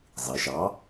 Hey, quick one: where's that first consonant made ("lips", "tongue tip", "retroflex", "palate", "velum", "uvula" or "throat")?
tongue tip